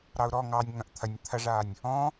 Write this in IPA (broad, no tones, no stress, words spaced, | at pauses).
ɾɑʊ̯ɾɔ ŋɑnʲ ŋɐ̃ʔt̪ʰɐnʲ t̪ʰɐʐaːnʲ | ɔ̃ː